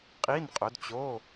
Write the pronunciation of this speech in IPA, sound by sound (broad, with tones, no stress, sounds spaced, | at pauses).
qʼ i˧˥˧ n qʼ ʊ˨˦ d t͡ɕ o˧˥˧